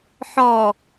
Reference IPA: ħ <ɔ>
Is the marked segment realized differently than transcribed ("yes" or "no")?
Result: no